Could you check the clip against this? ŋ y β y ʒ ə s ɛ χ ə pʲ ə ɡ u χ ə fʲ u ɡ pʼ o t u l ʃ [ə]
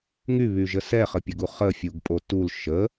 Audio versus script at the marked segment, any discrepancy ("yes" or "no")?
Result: no